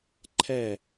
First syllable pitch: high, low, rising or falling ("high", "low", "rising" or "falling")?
falling